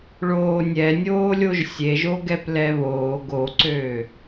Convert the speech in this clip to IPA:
ɭ oː nʲ ɛ nʲ oː lʲ o ʒ sʲ e ʒ o ɡ ɛ p l ɛ β oː ɡ o ǀ øː

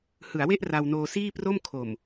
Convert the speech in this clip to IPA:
h ɯ˩˦ a̯ w e˥˩ ʔ r a˧ w n oː˧ s iː˥˩ p r o˥˩ m kʰ o˨˩ m

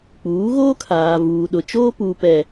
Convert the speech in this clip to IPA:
k͡p uː˨˦ ɣ oː˦ kʰ aː˨ v uː˨ ɗ ʊ˨ t͡ʃ oː˦ p uː˨ p ɛ˨

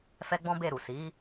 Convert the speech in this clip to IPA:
f ɛ˦ ɡ͡b ɔ̃˦ b e˦˨ ɾ u˨ s i˨˦

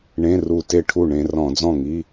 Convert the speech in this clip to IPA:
ɳ ẽ˧˥˧ r u˧˩ t e˥˩ ʈʰ u˥˩ ɳ ẽ˧ r ɔ̃˧˩˧ d͡z ɔ̃˥˩ ŋ i˧˥˧

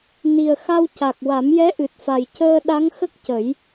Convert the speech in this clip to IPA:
n i˨˩ ə̯ x a˧ w c a˨˩ k̚ w a˨˩˦ m j ɛ˧˥ ʔ ɨ˨˩ t̚ f a˨˩ j c əː˧ ɗ a˧˥ ŋ x ə˦˥ k̚ c ə˨˩˦ j

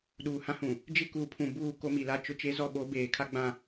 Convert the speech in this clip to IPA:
ɗ uː˨ h ã˦ h ũ˨ | d͡ʒ ɪ˦ k u˨ pʰ ũ˨ b uː˦˨ k o˦ m i˨ l a˦ t͡ʃ ʊ˦ t͡ʃ e˦ z ɔ˦˨ ɓ o˨˦ b eː˨ kʰ a˦ ɡ͡b ã˨

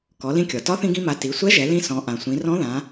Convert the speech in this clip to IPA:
k ɔ˩˧ l ĩ˧ kʲ ɔ˩ t ɒ˧˥ θ ĩ˧ ɡ ĩ˧ m a˩˧ t i˩˧ sʷ ɛ˧˥ ʒ ɛ˩˧ l ĩ˧ s ɔ̃˩˧ ʔ ã˩ sʷ ĩ˩˧ r ɔ̃˧˥ ð ã˩˧

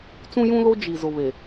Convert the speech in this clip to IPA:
t͡s ũ˦ j ũ˦ l o˦ d͡ʒ i˨ z ʊ˨ β e˨

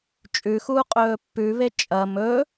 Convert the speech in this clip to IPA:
t͡ʃʼ ʉ x uː qʼ ɵː pː ʉ β e t͡ʃʼ ɐ m ɵ

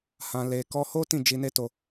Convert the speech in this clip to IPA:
h ã˧ l e˧ k ɔ˦ h o˦ t ĩ˦˨ d͡ʒ i˧ n e˦ t o˧

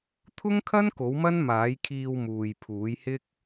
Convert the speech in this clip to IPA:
t̪ʰ ʊ˥ ŋ kʰ ɐ˥ n k o˨˥ w m ɐ˥ n m aː˨˥ j kʰ iː˧ w m uː˨ j pʰ uː˨˥ j h ɪ˥ k̚

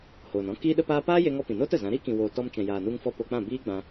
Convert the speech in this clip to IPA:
h oː˨ n ɔ̃˦ k iː˦ ɗ ə˦ p aː˦ p aː˦ j e˧ ŋ ɔ˧ p ĩ˨ n oː˦ t ə˨ z ã˨˦ ɾ iː˦ k ĩ˨ w oː˨ t ɔ˧ m t͡ʃ ɛ̃˨ j aː˨ n u˧ ŋ f ɔ˧ p o˧ k͡p ã˦˨ b iː˦ ɡ͡b ã˧

